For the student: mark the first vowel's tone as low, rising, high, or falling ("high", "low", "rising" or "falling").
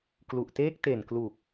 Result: low